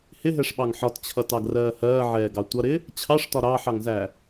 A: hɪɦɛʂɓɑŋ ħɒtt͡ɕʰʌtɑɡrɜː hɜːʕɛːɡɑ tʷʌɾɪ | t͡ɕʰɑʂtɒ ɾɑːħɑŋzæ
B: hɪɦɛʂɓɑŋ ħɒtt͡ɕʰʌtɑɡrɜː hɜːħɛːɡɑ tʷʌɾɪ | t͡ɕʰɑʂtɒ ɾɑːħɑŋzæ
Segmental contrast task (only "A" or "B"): A